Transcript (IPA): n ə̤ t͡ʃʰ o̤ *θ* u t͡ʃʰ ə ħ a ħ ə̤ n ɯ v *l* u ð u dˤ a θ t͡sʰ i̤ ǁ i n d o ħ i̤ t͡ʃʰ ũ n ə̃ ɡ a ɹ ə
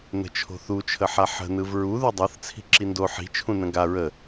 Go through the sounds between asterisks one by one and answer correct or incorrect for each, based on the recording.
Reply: correct, incorrect

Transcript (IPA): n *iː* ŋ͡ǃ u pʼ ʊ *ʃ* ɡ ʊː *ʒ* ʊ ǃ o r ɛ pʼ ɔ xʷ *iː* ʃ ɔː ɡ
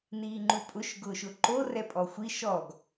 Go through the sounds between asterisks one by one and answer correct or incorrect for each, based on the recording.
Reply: correct, correct, incorrect, incorrect

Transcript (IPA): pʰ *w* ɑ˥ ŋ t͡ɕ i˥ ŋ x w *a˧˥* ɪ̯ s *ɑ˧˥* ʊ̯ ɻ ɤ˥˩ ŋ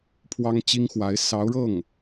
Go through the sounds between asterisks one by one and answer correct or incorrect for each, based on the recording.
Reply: correct, correct, correct

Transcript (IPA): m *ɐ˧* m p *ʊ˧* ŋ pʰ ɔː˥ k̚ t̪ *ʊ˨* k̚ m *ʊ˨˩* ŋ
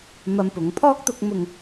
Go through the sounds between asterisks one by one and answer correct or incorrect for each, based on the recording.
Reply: correct, incorrect, incorrect, incorrect

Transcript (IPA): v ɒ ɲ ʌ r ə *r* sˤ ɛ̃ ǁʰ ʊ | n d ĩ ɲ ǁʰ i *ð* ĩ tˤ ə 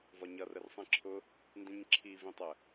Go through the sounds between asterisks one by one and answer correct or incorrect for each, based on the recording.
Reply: correct, incorrect

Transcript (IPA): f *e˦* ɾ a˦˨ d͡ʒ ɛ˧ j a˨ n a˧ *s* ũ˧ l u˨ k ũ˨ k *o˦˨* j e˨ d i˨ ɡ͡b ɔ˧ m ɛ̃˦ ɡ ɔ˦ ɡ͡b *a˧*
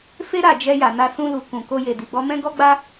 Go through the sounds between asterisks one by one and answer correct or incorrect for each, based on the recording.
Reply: correct, correct, incorrect, incorrect

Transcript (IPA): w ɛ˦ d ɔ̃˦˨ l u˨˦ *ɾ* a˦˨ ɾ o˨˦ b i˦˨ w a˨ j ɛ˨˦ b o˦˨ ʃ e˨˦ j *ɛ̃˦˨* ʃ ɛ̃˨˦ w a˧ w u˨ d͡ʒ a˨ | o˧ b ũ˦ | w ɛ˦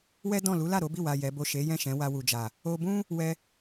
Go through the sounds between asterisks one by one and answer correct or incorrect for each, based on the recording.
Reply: incorrect, correct

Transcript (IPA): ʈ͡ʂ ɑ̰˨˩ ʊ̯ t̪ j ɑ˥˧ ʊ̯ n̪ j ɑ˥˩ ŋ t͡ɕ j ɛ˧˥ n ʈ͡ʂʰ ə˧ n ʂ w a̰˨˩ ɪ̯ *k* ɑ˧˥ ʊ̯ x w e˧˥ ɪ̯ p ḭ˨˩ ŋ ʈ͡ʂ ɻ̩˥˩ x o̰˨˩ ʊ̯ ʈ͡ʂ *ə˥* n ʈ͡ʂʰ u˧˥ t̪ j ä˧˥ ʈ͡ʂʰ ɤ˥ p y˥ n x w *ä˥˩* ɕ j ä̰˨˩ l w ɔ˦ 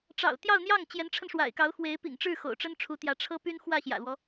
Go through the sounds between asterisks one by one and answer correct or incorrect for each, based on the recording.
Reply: correct, correct, correct

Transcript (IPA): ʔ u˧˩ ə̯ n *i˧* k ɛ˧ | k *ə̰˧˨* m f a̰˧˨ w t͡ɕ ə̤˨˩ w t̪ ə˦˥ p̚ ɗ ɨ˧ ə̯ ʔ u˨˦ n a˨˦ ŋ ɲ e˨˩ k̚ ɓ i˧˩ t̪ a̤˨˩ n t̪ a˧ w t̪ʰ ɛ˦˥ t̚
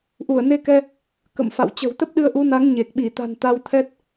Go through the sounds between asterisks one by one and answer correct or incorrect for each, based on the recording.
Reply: incorrect, correct

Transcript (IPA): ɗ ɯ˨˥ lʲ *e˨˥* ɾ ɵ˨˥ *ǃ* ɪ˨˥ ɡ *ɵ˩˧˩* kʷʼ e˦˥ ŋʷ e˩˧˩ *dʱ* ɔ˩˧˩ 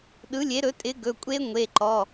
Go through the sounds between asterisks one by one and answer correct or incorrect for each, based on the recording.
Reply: correct, incorrect, correct, incorrect

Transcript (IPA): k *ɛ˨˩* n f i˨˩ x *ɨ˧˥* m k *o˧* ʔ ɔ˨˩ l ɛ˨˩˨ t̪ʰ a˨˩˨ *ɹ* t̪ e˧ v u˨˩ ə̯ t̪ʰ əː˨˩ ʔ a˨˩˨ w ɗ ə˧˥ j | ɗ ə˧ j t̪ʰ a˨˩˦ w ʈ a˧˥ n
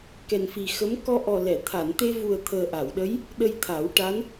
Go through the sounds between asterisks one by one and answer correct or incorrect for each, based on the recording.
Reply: correct, incorrect, incorrect, incorrect

